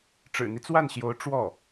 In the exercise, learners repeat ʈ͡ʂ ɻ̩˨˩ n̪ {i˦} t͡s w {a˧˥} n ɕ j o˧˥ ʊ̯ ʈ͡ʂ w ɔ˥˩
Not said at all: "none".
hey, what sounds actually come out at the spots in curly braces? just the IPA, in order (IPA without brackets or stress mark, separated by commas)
i˦, a˥˩